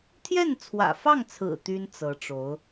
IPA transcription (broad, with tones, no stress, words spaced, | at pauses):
t̪ʰjɛ˥˩nt͡sʰwä̰˨˩fɑ˥˩ŋt͡sʰɹ̩˨˩ t̪y˥n t͡sɤ˧˥ʈ͡ʂo˧˥ʊ̯